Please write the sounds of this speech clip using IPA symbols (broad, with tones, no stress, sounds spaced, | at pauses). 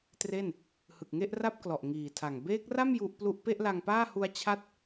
t r e˥˩ n | h ɯ˨˩ k̚ ŋ e˥˩ ʔ r a˥˩ p̚ k l ɔ˨˩ ʔ ŋ iː˨˩ tʰ a˨˩ ŋ b eː˦˥ k̚ r a˥˩ m j u˦˥ ʔ p l u˥˩ ʔ p e˥˩ ʔ l a˧ ŋ p aː˥˩ h u˦˥ a̯ t͡ɕʰ a˥˩ t̚